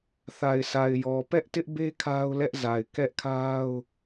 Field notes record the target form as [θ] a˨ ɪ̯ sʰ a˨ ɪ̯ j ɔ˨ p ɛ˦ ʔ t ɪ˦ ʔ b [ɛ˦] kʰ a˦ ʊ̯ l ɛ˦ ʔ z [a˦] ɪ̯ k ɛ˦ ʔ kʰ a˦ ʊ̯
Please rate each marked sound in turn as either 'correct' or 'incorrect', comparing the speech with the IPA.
correct, incorrect, incorrect

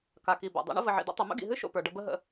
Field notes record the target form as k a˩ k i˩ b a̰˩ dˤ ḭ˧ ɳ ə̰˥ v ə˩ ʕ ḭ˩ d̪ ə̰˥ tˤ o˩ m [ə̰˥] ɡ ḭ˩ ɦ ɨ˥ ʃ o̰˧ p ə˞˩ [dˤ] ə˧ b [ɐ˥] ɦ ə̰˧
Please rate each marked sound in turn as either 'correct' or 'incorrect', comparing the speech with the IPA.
correct, incorrect, incorrect

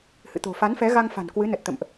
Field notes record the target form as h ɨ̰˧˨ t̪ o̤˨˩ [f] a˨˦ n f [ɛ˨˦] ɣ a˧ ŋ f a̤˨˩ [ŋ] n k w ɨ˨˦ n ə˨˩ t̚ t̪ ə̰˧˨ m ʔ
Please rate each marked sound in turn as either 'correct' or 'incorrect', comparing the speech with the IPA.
correct, correct, incorrect

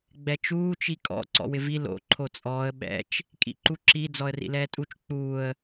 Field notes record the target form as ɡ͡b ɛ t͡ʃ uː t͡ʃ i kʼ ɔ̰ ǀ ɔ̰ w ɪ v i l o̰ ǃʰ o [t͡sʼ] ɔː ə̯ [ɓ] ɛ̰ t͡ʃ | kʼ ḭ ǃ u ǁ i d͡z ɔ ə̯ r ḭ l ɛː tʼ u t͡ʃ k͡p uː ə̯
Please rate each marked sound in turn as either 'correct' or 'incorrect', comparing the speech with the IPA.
correct, correct

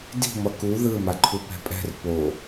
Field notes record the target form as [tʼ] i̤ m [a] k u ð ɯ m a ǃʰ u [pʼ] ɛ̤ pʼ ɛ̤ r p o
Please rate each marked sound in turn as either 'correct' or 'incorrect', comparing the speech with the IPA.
incorrect, incorrect, incorrect

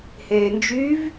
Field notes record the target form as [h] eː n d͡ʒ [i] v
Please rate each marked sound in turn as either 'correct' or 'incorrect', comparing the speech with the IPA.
correct, incorrect

